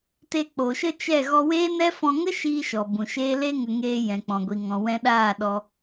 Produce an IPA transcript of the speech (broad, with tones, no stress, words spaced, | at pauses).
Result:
te˧k͡po˨ʃə˦ t͡ʃɛ˦˨ ɣɔ˧weː˦nɛ˦ fɔ̃˧ŋə˦ʃiː˧ ʃɔ˨bũ˨ʃeː˦ le˦ŋə˧ŋeː˧ jɛ̃˨k͡pɔ̃˨ɡʷi˨ ŋɔ̃˨ wɛ̃˧ɗaː˦˨ ɗɔ˧